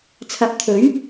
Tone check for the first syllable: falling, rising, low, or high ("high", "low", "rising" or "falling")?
rising